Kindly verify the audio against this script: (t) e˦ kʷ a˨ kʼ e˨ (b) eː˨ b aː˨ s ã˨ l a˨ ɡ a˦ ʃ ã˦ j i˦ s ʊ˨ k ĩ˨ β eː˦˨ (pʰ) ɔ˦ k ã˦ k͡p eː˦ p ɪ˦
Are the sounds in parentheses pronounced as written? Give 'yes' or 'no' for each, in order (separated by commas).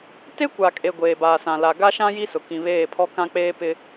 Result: yes, no, yes